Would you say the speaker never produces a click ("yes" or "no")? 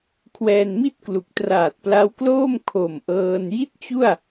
yes